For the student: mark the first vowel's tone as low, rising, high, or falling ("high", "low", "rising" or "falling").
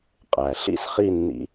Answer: low